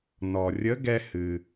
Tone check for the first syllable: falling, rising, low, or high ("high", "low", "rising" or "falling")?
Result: low